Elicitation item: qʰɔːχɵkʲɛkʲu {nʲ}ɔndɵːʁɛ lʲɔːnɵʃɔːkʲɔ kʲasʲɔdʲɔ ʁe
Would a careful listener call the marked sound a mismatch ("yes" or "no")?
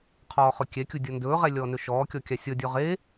yes